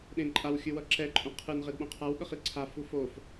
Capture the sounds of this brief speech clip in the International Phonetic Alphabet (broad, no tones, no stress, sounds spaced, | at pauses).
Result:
ɗ ẽ ǃʼ a w xʲ ɯ w ʌ ǁ ɛ ǃʼ ũ qʰ ɯ n ʁ e d ɓ õ qʰ a w ɠ ʌ χ i ǀʰ a f u f o f